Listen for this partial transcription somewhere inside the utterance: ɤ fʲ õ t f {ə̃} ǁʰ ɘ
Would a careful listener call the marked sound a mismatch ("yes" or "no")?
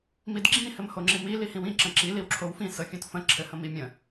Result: no